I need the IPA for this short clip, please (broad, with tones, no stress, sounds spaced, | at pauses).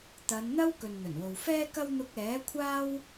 t̪ ɐ˨˧ n n̪ ɐ˥ w k ɵ˨ n n̪ ɵ˨˩ n w o˨ w f ɛː˥ k ɐ˥ w n̪ ʊ˧ k̚ ɛː˨˥ kʷʰ aː˥ w